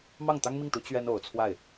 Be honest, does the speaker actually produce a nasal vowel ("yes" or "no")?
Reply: no